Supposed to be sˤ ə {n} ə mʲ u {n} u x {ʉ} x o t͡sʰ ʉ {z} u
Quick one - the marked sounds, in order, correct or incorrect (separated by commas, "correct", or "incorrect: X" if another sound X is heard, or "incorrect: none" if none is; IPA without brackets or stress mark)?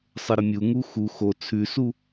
incorrect: ɾ, incorrect: ŋ, incorrect: u, incorrect: s